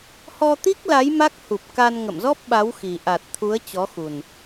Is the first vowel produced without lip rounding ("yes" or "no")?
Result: no